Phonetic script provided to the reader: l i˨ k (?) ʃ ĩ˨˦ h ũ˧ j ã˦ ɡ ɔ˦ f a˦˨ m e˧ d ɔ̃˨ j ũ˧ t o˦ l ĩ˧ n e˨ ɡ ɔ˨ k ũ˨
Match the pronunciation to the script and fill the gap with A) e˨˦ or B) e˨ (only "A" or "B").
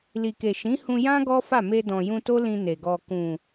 B